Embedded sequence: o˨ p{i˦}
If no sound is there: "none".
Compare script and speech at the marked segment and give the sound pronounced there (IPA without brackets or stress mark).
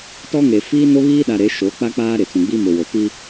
i˦